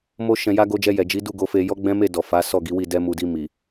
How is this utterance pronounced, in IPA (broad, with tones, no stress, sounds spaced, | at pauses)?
m o˧ ʃ ɛ̃˨ j a˧ ɡ o˧ d͡ʒ ɛ˧ j ɛ˨ d͡ʒ i˨˦ d u˦˨ ɡ o˨˦ f e˧ j ɔ˦ ɡ͡b ɛ̃˦ m e˦˨ d ɔ˨ f a˨˦ s ɔ˦˨ ɡ i˨˦ w i˦˨ d ɛ˧ m u˨ d i˧ m i˨